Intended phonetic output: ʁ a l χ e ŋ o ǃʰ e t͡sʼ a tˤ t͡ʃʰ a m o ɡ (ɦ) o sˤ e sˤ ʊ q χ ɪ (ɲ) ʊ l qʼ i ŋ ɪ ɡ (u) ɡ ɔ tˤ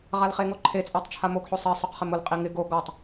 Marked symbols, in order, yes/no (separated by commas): no, no, no